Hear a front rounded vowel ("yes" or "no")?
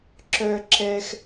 yes